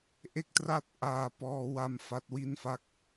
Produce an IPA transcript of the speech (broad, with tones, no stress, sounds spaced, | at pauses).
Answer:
ʔ e˥˩ k̚ t r a˥˩ t̚ ʔ aː˧ p ɔː˧ w a˧ m f a˦˥ t̚ w i˥˩ n f a˥˩ k̚